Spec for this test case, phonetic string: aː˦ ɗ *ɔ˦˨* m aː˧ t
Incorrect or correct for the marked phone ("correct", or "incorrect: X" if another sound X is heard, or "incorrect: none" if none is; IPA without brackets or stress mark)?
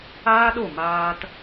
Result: incorrect: o˦˨